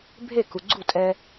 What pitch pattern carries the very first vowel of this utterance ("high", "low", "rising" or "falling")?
falling